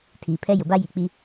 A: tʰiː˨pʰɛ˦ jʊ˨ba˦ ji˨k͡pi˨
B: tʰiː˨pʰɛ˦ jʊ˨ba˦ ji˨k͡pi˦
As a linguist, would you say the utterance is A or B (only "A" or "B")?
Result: B